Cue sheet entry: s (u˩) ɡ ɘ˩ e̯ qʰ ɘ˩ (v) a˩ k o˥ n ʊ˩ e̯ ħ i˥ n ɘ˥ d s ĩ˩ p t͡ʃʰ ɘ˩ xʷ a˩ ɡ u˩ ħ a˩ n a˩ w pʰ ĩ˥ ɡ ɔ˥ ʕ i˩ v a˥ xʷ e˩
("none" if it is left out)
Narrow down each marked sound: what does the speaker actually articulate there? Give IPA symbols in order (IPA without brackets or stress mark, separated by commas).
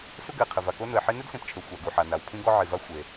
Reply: u˥, v